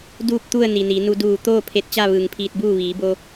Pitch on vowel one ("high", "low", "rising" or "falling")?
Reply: falling